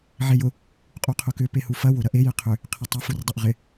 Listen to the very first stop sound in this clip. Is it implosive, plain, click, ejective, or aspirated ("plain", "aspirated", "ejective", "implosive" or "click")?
ejective